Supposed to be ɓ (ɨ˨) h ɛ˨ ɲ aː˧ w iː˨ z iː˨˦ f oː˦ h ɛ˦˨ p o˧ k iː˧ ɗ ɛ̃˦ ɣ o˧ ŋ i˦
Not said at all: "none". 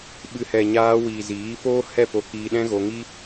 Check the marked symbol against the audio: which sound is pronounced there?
ɨ˨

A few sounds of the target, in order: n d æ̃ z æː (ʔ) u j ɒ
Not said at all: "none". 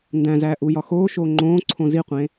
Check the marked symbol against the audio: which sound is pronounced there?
ʔ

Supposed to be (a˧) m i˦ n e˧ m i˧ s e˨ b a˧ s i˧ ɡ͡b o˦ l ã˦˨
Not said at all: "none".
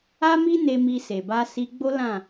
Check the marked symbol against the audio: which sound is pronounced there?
a˦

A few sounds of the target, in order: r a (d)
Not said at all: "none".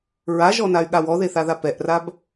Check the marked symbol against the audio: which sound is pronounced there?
b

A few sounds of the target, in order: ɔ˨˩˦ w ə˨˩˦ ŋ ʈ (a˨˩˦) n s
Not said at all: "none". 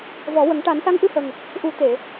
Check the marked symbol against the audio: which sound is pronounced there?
a˨˩˦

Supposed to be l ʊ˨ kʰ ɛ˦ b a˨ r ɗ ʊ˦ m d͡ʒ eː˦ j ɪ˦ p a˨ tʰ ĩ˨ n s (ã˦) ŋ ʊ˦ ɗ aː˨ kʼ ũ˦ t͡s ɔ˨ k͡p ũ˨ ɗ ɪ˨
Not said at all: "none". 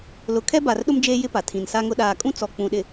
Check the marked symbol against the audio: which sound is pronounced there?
a˦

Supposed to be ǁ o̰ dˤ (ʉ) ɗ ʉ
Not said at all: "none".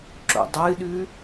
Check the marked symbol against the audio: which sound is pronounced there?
ɨ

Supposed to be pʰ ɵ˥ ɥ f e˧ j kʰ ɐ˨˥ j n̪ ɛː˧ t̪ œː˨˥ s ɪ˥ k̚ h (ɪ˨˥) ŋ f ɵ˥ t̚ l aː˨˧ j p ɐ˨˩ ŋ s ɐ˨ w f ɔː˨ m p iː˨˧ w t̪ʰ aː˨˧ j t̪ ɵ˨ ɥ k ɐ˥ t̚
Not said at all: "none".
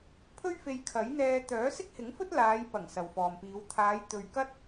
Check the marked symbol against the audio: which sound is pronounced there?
ɪ˨˥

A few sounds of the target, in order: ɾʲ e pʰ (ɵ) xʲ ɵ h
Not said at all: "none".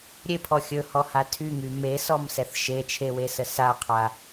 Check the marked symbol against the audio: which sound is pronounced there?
ɔ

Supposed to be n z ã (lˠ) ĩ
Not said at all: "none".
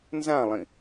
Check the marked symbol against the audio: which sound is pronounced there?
lˠ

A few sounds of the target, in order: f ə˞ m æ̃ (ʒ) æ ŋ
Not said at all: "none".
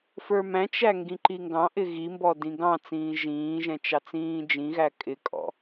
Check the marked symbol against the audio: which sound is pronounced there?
t͡ʃ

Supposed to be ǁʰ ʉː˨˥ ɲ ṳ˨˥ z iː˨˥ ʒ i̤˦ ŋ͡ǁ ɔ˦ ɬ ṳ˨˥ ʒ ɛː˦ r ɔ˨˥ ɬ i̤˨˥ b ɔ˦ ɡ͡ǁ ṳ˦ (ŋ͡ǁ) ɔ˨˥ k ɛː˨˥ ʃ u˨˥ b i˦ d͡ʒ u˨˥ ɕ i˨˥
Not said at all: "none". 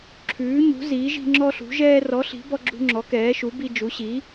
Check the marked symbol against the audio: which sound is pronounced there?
ŋ͡ǁ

